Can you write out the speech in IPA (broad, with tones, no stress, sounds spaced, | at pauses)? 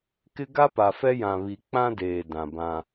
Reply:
k ɪ˦ ɡ a˦ p a˨ f ɛ˦ j ã˨ β i˨ k͡p ã˦ d eː˨ d ã˨ b ã˦